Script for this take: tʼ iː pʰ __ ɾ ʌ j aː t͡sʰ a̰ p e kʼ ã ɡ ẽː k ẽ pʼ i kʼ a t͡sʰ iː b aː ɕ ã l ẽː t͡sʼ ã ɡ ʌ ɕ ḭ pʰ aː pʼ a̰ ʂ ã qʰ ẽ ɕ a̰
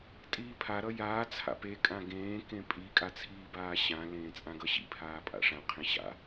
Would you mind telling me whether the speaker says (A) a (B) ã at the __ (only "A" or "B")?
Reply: A